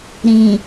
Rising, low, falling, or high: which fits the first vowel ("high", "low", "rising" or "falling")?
low